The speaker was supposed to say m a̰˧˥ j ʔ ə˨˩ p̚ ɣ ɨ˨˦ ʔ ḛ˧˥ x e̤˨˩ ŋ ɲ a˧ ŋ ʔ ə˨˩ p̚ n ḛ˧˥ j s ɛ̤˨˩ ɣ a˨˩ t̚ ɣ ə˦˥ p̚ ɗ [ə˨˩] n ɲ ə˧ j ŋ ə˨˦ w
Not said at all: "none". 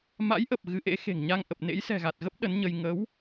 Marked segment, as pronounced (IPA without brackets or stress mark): ə˨˦